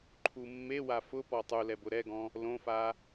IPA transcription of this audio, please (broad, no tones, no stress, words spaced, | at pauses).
ǃʰumːewa fʊpɔ tˤulɛbʊ ɾɛɡɔ̃ | lõfa